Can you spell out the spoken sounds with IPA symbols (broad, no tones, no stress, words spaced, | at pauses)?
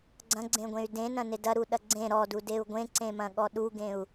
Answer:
ɡ͡ǀɐ̃ɡ͡ǀẽɡʷẽy̯ dẽnɐ̃ned ɐɾuɗɐ ɡ͡ǀẽ ɾɔdudeu̯ ɡʷẽǀẽmɐ̃ɠɔ ɗuɡẽu̯